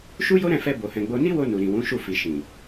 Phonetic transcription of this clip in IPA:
ʃu˦jo˦ɾɛ̃˦˨fɛ˧ bo˨hɛ̃˨ɡ͡bo˧ ni˦wo˧ nu˨ɾĩ˨wũ˨˦ʃu˦˨ fi˨ʃĩ˨

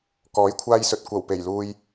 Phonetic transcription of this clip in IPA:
kɔː˨˥jkʷʰaː˧jsɵ˨t̚ kʷɐ˨˩wpe˨˩jluː˧j

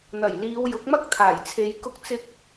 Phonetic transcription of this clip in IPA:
n̪ɐ˨˩jliː˨˧w jʊ˨˥k̚mɐ˥k̚t̪ʰaː˨˩jt͡sʰe˨˧j kʊ˧k̚t͡sɪ˧k̚

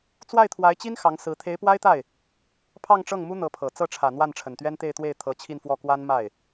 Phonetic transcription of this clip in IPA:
t͡swa˥˩ɪ̯t̪ʰwa˧˥ɪ̯t͡ɕi˥n xɑ˧˥ŋ sɹ̩˧˥ t̪ʰe˧˥ɪ̯pwa˥ɪ̯t̪a˥˩ɪ̯ | pʰɑ˥˧ŋʈ͡ʂɤ˥˩ŋmu˥ n̪ɤ˧˥pʰɤ˨˩ t͡sɤ˥˩ʈ͡ʂʰä˨˩ n̪wa˥˩nʈ͡ʂʰə˨˩nt̪ɥɛ˥n t̪e˥˧ɪ̯t̪we˥˩ɪ̯ t̪ʰɤ˧˥t͡ɕʰi˥˧nfwɔ˥˩ kwa˥nma˥˩ɪ̯

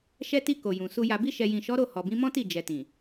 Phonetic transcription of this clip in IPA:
ʃɛ˧ti˧ ko˨jũ˨su˧ ja˨bi˧ʃɛ˨jĩ˨ ʃɔ˨˦ɾo˦˨ hɔ˨bĩ˨˦mɔ̃˦ti˦˨ d͡ʒɛ˨tĩ˨

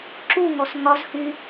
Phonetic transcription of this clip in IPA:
ǁuŋɔs ŋɒzhy

